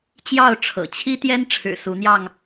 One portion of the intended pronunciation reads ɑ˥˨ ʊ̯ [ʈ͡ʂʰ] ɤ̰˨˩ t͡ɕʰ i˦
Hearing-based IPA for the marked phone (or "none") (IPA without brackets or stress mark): ʈ͡ʂʰ